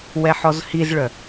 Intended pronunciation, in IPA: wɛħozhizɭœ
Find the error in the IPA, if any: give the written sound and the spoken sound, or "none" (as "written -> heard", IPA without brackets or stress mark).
o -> ɔ